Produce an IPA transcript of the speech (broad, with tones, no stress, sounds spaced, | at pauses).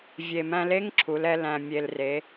vʲ e˨˩ m æ̃˧ l e˧˥˧ ŋ ǁʰ u˩˧ l ɛ˧ l æ̃˨˩ mʲ e˨˩ l r e˩˧